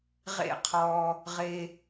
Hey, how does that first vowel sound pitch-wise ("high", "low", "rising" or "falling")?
falling